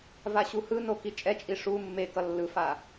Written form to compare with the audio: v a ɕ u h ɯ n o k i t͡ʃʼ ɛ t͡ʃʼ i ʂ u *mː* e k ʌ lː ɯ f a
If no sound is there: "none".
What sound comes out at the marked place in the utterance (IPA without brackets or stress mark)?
mː